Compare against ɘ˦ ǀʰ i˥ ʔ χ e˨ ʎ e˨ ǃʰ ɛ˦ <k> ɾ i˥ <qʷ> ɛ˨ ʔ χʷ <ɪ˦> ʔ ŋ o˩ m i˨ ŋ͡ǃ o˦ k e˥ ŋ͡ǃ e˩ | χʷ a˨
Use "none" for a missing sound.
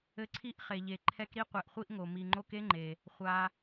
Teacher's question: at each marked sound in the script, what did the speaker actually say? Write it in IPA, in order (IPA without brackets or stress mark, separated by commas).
k, qʷ, i˦